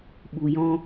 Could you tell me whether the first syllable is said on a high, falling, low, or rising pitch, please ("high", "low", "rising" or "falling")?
low